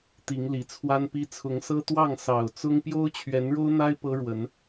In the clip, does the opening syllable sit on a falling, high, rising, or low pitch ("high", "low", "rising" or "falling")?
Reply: rising